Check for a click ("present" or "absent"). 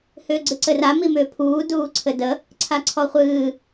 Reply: present